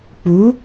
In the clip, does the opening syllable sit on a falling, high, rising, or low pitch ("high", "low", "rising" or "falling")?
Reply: rising